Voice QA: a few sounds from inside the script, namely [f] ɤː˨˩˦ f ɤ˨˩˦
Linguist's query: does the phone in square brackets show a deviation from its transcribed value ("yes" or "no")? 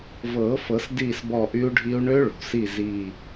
yes